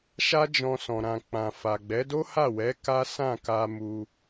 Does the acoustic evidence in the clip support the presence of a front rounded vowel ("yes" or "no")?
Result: no